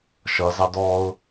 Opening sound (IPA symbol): ʃ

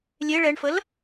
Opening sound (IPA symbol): lʲ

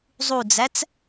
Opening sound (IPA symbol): zˤ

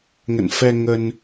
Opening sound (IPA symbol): ŋ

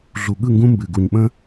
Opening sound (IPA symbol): ɮ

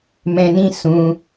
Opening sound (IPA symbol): m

